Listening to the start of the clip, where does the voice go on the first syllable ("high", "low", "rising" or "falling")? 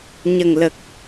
low